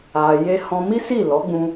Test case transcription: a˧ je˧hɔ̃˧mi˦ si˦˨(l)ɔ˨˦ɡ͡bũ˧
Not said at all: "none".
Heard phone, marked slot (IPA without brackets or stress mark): l